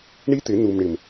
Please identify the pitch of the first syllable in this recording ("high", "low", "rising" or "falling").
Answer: high